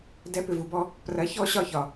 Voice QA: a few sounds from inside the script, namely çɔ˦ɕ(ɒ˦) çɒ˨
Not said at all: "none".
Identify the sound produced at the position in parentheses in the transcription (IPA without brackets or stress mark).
ɒ˦˨